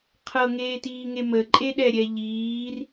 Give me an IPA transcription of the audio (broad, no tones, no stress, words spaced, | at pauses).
qʰɤŋeːtiːŋe məǃʼeɗɛɾʲɛ ʎiːr